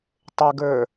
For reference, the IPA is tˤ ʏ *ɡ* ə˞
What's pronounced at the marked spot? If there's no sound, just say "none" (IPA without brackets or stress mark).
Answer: ɡ